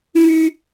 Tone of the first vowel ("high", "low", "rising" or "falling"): high